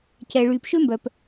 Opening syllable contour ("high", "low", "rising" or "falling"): low